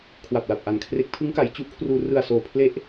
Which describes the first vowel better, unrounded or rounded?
unrounded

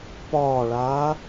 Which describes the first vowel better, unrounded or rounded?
rounded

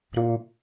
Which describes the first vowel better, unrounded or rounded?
rounded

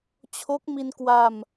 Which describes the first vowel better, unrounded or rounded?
rounded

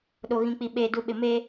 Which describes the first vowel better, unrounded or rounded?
rounded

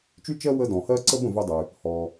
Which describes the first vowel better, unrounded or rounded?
rounded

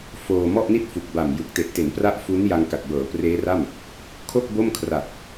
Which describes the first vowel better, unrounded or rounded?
rounded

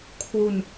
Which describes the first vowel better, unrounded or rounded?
rounded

